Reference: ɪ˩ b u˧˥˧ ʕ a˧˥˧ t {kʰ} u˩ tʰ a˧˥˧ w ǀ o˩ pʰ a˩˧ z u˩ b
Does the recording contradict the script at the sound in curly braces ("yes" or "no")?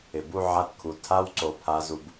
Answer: no